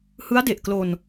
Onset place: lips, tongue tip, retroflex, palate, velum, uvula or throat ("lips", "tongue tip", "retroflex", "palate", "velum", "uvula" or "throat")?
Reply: throat